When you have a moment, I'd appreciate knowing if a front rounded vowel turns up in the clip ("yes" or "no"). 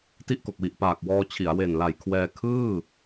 no